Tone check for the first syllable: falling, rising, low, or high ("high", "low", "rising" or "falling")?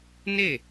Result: falling